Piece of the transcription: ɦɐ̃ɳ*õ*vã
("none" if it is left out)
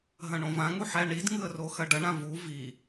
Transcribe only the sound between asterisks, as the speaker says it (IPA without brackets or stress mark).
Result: õ